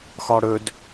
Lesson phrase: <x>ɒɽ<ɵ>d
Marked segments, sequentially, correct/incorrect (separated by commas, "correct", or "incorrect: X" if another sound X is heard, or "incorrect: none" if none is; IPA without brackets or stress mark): correct, correct